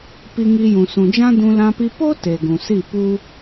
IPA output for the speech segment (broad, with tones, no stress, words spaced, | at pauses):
pi˧ŋi˧jũ˨ sũ˨d͡ʒã˦dũ˧ lã˧pi˧ po˦ te˨ɡũ˨si˦˨ pu˦